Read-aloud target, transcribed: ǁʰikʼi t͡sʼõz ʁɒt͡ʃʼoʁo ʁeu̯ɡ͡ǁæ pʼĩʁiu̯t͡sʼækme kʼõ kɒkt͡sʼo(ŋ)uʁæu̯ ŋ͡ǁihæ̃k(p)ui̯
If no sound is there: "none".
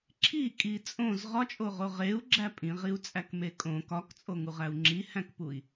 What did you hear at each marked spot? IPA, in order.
ŋ, p

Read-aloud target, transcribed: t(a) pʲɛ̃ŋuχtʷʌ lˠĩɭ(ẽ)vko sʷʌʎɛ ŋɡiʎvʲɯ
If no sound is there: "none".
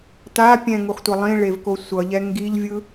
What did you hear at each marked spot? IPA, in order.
a, e

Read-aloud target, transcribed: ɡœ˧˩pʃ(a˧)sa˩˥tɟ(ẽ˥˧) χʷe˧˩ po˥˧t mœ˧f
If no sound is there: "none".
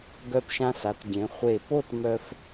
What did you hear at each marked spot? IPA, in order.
ã˧, ẽ˩˧

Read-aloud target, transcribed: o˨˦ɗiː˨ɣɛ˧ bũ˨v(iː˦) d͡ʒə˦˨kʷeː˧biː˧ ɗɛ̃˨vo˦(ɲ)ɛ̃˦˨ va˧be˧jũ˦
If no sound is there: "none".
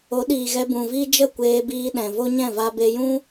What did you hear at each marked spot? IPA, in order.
iː˦, ɲ

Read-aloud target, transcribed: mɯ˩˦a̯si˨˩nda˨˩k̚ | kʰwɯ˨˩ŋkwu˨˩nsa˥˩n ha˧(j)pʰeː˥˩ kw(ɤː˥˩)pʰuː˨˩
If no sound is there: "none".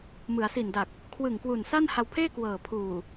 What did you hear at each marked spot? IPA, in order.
w, ɤː˨˩

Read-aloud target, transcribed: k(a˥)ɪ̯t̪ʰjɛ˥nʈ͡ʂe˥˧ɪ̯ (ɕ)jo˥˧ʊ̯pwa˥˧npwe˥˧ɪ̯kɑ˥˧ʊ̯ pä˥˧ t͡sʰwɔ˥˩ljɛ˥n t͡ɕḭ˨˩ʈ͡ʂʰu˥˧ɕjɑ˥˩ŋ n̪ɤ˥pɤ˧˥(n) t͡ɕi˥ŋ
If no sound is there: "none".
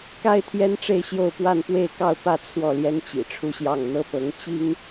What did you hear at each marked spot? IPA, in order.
a˥, ɕ, ŋ

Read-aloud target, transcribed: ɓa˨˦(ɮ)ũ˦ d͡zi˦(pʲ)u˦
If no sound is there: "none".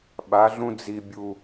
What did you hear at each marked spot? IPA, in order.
ɮ, bʲ

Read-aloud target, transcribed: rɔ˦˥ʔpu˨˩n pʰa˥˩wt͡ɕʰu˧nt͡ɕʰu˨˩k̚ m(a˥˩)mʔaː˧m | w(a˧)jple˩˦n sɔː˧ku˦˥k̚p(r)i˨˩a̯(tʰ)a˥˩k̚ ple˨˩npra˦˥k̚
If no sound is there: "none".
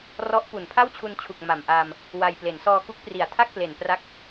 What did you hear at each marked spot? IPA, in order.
a˨˩, a˧, r, tʰ

